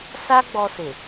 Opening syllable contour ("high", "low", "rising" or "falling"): high